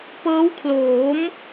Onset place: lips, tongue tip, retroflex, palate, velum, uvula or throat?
lips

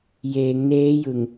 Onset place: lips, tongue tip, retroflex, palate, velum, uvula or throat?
palate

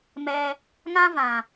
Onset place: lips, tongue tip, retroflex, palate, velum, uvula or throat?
lips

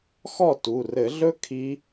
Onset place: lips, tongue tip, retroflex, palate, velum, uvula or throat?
velum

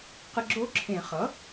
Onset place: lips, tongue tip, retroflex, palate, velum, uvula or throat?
uvula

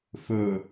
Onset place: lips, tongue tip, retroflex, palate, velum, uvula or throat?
lips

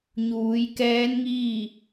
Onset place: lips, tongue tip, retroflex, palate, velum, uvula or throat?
palate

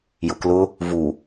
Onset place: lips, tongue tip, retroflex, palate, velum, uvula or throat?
palate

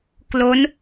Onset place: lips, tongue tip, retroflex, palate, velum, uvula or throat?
velum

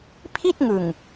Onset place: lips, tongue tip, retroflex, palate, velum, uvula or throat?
lips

